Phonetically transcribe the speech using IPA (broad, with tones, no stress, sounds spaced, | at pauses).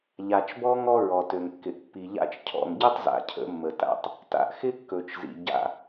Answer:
ʎ a˨ t͡ʃ b ɔ˦ ŋ ɔ˦ ɹ ɔ˨ t ø˨ ŋ kː ɪ˨ ʔ pː i˨ ʎ a̰˦ t͡ʃ cʰ ɔ̰˨ ŋ ɟ ɪ˦ tˤ z a̰˨ cʰ ə̰˨˦ mː ə˨ t a̰˦˨ tˤ | t a̰˦ ʔ x ɪ˦ kː ɵ˨ t͡ʃ z ḭ˨ ɟ a̰˦